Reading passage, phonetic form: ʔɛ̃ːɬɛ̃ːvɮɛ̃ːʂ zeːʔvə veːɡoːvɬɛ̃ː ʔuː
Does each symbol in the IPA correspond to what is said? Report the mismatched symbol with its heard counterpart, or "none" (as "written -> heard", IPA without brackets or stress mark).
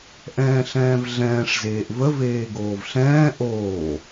uː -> oː